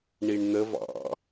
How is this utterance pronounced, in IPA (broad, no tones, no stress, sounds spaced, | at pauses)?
ɳ i ɳ n̪ ə v ɑ̰